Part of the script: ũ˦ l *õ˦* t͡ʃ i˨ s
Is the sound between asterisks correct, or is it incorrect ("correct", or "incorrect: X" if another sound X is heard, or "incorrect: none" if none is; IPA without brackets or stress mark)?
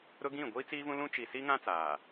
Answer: incorrect: ũ˦